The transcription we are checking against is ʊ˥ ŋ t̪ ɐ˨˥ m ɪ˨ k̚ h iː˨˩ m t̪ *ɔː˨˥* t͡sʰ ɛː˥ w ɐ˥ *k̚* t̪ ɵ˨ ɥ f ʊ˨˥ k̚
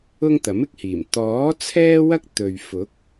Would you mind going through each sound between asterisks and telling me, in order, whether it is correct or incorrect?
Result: correct, correct

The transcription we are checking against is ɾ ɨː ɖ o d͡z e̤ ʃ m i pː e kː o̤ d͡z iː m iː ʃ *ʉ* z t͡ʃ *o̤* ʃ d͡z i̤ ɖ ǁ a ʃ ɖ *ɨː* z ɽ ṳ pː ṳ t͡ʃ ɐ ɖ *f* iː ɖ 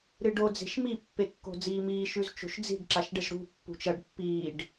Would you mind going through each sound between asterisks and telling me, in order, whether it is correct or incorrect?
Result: correct, correct, incorrect: ɨ, incorrect: pː

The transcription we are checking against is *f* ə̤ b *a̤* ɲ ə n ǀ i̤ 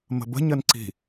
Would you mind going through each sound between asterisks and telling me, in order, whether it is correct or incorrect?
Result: incorrect: m, incorrect: ə̤

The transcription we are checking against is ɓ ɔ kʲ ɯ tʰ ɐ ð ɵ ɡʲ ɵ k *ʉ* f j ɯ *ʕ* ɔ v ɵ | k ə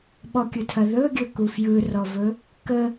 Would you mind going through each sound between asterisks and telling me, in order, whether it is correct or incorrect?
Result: incorrect: u, incorrect: r

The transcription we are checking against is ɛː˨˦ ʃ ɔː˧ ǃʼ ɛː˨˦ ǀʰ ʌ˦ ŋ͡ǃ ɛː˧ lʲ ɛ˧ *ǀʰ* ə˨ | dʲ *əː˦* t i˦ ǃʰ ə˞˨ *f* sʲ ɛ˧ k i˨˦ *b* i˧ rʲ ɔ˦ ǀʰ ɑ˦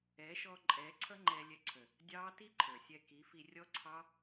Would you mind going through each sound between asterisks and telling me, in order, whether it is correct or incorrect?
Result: correct, incorrect: ɑː˦, incorrect: none, incorrect: f

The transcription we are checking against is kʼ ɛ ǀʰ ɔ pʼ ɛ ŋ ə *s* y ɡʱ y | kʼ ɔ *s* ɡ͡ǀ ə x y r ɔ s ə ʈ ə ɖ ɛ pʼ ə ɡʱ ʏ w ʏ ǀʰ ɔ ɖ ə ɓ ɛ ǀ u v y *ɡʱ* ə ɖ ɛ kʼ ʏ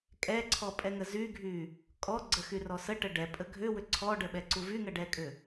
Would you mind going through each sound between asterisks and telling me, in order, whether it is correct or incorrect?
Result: incorrect: z, incorrect: none, incorrect: ŋ

